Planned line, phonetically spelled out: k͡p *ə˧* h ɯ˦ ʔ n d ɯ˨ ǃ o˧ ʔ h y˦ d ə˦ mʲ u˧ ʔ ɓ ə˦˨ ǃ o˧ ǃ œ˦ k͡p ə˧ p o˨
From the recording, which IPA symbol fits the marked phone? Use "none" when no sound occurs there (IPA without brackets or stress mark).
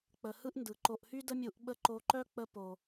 ə˨